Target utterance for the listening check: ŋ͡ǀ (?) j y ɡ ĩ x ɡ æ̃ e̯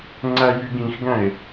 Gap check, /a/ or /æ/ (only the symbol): æ